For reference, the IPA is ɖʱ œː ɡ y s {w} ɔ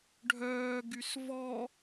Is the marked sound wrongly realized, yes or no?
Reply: yes